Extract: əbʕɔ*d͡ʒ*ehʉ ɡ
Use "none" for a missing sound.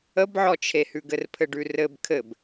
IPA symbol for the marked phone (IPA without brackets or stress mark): t͡ʃʰ